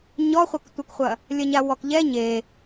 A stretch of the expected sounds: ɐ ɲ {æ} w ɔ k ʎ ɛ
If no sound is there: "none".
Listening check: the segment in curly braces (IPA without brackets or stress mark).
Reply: a